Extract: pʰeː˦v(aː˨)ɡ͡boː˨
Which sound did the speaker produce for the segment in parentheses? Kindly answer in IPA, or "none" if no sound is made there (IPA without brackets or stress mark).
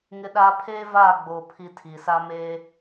aː˦˨